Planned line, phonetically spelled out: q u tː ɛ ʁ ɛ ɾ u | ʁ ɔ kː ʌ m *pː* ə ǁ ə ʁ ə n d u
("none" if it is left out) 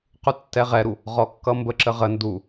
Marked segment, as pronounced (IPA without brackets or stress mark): b